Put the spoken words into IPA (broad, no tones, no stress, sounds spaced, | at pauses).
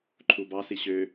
ǃʰ u b ɑ s i ɕ ø